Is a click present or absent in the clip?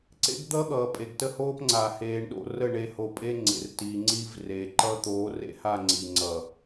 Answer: present